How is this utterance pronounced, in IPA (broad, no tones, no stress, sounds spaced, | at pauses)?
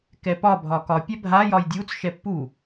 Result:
k ɛ p ɒ bʱ ɒ k ɒ pʲ ɛ bʱ a j ɒ j dʲ u t͡s ʃ ɛ pː u